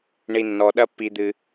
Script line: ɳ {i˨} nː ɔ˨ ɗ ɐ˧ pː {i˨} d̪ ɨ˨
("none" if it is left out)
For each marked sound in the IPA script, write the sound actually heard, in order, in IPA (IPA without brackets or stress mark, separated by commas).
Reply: i˨, i˨